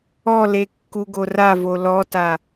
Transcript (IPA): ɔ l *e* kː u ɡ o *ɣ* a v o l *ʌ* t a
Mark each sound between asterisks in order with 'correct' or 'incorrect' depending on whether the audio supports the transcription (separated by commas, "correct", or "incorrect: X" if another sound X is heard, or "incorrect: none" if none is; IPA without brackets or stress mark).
correct, incorrect: r, incorrect: ɔ